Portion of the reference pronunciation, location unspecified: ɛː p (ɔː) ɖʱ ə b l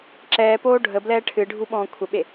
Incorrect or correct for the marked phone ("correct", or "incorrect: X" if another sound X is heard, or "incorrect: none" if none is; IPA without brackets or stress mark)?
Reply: incorrect: oː